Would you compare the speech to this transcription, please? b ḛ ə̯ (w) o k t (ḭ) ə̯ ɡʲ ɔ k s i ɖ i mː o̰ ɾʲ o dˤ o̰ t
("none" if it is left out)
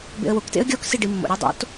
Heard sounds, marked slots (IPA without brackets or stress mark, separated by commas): w, ḛ